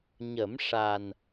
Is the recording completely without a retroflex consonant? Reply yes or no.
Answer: no